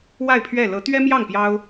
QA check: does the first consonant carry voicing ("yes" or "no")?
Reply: yes